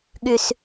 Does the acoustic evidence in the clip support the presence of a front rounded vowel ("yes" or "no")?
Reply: yes